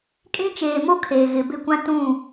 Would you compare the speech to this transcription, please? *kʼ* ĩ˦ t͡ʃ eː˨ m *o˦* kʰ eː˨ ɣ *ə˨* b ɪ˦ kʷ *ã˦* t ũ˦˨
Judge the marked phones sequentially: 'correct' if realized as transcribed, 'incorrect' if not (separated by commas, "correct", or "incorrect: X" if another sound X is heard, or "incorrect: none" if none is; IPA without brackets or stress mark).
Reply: correct, correct, incorrect: ɪ˨, correct